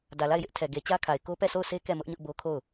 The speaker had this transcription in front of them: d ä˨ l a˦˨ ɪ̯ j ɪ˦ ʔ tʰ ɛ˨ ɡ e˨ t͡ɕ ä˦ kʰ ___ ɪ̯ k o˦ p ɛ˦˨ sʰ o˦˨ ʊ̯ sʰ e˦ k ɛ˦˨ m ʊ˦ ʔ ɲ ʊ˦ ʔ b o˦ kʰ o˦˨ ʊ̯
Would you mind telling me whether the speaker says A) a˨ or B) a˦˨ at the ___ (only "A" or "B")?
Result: A